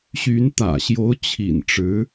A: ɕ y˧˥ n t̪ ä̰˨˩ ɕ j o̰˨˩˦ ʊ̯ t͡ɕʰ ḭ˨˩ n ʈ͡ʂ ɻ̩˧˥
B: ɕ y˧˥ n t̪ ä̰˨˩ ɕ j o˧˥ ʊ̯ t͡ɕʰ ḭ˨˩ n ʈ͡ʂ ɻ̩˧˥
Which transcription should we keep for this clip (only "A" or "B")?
B